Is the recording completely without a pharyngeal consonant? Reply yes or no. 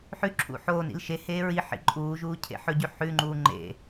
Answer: no